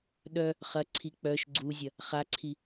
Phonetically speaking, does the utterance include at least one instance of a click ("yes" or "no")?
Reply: yes